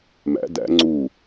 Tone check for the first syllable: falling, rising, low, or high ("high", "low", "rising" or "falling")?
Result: rising